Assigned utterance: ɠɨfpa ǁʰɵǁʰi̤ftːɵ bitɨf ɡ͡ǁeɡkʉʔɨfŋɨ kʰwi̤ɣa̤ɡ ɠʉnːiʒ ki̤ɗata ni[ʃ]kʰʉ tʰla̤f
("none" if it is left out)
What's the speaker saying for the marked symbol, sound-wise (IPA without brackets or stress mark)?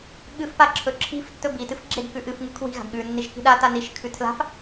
ʃ